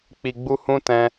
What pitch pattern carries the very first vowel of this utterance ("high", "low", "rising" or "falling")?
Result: low